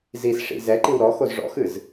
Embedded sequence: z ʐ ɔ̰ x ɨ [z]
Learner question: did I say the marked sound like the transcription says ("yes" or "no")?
yes